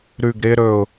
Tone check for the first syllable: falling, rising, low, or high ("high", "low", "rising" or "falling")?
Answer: low